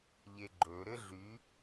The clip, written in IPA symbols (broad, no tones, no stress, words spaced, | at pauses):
ʎeɡ͡ǃɵ ɾɘɮy